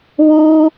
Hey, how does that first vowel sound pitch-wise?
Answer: high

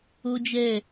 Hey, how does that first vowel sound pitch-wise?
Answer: high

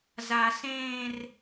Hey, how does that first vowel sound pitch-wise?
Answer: low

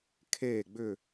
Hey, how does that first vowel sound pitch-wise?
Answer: falling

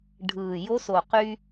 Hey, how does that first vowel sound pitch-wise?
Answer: low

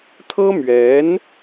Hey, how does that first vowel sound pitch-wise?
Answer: high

